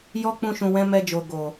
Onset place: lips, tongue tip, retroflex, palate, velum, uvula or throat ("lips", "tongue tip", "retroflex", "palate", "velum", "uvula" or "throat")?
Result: palate